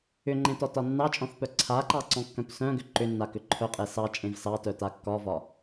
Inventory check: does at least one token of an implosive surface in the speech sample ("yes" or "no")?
no